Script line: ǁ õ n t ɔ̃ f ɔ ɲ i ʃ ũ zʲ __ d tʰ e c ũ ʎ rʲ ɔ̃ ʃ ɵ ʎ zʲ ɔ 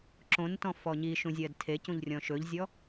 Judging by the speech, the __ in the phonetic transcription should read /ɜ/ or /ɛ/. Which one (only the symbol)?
ɜ